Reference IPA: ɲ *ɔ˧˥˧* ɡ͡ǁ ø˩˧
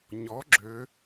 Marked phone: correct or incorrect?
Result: incorrect